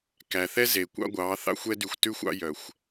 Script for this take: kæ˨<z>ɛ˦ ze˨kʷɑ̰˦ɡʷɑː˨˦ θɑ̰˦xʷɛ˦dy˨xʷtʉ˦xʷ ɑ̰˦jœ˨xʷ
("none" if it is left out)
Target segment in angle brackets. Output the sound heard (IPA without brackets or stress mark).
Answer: θ